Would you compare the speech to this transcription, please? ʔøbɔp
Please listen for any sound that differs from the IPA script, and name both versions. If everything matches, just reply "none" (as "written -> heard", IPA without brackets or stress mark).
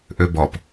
none